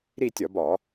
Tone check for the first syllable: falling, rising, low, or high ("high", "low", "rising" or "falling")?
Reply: falling